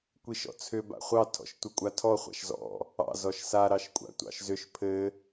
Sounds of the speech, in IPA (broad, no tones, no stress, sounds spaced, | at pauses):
kʷ i ʃ ɔ̰ t͡sʰ ʏ b a̰ χʷ ɑ tʰ ɔ̰ ʃ tʷ ɘ kʷʼ a tʰ ɔ χʷ a̰ ʃ z ɔ̰ | ɑ̰ z ɔ ʃ s a ɾ ɑ ʃ kʷʼ a̰ tʷ ɑ̰ ʃ z ʏ ʃ pʰ ɘ